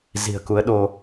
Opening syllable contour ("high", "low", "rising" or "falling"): low